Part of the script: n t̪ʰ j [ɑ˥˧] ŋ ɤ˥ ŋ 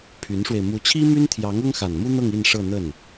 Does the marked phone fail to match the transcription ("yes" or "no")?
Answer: yes